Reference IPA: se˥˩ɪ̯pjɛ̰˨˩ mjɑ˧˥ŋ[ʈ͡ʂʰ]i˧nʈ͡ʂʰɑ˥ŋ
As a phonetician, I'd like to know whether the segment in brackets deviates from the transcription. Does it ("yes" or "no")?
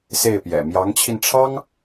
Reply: yes